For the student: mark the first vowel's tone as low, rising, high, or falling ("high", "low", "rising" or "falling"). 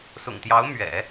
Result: low